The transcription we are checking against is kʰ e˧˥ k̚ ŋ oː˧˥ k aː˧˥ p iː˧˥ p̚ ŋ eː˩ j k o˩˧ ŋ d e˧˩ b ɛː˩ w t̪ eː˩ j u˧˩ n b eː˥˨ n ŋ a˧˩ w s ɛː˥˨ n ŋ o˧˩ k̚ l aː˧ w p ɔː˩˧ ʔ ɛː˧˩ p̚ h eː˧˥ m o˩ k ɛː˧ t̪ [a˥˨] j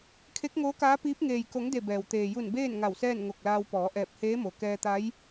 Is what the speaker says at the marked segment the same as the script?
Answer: no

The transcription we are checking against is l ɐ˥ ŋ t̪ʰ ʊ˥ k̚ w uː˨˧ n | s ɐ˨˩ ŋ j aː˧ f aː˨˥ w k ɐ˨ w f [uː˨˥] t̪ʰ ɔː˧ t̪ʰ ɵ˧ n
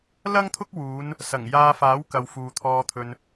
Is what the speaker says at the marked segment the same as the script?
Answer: no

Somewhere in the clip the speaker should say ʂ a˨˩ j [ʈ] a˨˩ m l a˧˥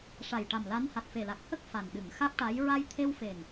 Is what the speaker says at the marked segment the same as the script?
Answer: yes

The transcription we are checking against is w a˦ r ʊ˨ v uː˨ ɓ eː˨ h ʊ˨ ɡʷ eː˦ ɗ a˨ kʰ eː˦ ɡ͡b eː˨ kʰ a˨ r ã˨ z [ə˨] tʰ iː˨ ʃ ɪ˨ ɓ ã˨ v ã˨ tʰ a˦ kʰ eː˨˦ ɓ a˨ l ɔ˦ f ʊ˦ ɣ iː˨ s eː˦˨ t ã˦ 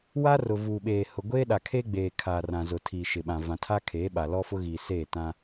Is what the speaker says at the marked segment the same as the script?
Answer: no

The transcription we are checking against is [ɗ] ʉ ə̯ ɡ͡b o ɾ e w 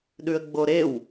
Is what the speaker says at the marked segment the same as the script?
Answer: yes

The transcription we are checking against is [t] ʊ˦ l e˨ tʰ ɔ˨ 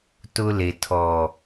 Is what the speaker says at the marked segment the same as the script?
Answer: yes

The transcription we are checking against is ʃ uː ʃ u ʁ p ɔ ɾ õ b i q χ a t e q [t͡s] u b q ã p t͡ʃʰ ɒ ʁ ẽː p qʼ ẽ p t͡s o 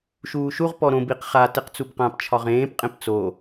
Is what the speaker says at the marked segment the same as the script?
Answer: yes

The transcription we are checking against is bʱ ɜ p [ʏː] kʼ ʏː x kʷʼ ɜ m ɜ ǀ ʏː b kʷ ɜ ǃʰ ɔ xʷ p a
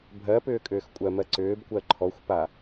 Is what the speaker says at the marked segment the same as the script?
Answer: yes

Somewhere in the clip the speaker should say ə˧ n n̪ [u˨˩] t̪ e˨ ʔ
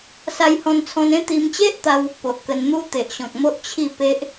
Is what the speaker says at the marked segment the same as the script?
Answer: no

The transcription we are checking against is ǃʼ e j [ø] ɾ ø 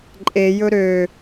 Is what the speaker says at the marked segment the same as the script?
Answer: no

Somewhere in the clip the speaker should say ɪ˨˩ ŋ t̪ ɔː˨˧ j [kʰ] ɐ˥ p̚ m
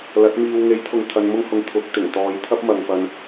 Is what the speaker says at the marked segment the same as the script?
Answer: no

